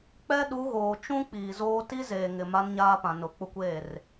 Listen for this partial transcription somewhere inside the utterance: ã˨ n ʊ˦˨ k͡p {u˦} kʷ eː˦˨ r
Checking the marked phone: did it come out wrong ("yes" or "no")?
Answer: yes